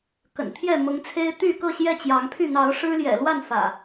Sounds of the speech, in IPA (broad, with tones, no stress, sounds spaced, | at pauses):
k ə̰˨˩ n t̪ʰ j ɛ˥˨ m ʊ˨˦ ŋ t͡sʰ e˦ ɪ̯ t̪ y˥˨ k ɤ˥˨ ɕ j ɛ˥˨ t͡ɕ j ɑ˨˦ ŋ pʰ y˥˨ n̪ ɑ˨˦ ʊ̯ ʂ ɻ̩˦ l j ɛ̰˨˩ l w a˥˨ n f ä̰˨˩